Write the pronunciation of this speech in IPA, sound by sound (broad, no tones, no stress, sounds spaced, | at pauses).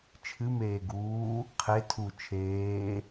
t͡ʃʰ ɨ m eː ɡ uː | qʰ e tʰ u t͡ʃʰ eː